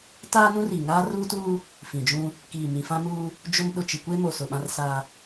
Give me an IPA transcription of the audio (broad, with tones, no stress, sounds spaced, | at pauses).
t aː˦ n ũ˦ r i˨ ŋ aː˦ r uː˦ t uː˦ | f ĩ˨ d͡ʒ ũ˦ | k iː˨ m ĩ˨ f ã˦ m uː˦ | d͡ʒ ʊ˦ m ɗ ʊ˨ t͡ʃ i˨ kʷ e˦ m o˨ s ʊ˨ ɓ ã˦ r s aː˦